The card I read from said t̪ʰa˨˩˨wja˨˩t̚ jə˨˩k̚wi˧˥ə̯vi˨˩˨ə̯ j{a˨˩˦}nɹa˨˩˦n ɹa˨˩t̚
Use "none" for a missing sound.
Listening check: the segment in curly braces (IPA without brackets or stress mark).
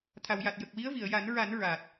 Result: a˨˩˦